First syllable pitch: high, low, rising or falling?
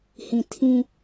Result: low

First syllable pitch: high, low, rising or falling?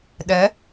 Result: rising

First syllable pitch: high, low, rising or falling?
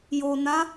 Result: low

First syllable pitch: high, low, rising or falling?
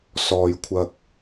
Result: low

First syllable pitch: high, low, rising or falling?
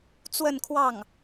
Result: falling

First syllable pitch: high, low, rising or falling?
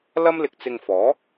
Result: high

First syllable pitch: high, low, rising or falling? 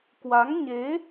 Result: rising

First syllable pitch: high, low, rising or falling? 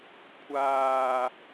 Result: low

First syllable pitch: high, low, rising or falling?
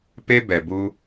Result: high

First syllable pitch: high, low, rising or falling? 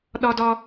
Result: high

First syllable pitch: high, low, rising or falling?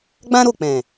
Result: high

